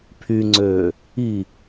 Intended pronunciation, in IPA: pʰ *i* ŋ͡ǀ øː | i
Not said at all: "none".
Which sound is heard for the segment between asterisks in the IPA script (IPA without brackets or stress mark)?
y